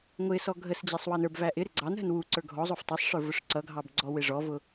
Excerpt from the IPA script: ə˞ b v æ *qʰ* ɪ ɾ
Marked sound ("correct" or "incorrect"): incorrect